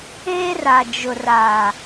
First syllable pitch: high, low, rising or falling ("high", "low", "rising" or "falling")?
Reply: high